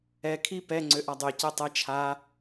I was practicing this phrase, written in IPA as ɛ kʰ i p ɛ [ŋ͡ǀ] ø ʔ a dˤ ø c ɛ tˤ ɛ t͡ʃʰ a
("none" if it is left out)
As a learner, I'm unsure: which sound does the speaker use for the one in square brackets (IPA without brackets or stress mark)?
ŋ͡ǀ